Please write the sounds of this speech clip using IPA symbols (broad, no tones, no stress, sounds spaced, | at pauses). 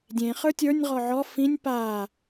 dʲ ẽ χ ə˞ tʲ ə˞ nʲ ʁ ɔ ʕ ɔ f ĩ nʲ p a